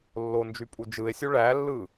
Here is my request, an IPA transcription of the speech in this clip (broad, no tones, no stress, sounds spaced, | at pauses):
lː o n d͡ʒ y pʼ u d͡ʒ ɯ e̯ sʲ u ɭ æ lː ɯ